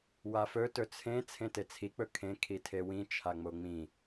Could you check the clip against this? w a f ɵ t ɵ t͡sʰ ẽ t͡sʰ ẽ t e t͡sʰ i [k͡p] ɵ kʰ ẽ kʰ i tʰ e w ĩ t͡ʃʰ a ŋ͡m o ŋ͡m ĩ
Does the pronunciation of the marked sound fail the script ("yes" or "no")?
no